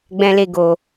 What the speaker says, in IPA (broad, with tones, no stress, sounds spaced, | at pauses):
ɡ͡b ɛ̃˦ l e˦ ɡ o˧